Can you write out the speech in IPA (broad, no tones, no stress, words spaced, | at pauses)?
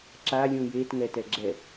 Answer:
ǁa lʲũjet ŋɛtɛɡ͡ǁɛ